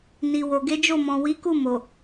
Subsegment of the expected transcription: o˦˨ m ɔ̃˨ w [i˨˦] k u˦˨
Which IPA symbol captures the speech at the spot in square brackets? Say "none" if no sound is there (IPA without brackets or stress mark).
i˨˦